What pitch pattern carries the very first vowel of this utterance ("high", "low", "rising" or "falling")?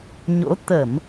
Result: rising